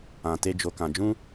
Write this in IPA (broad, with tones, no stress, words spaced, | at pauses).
ã˨te˧ d͡ʒo˨kã˨d͡ʒũ˧